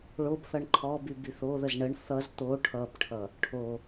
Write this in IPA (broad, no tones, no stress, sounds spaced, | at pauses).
ɭ o b θ ʌ ɳ ǃʰ ɔ b y b y θ o ð ə z ɳ ə ɳ θ ʌ z t̪ o ʈʰ ʌ b ʈʰ ʌ | ʈʰ o